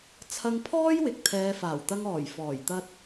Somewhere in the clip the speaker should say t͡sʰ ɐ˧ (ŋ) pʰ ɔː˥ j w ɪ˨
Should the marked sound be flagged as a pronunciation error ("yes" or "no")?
no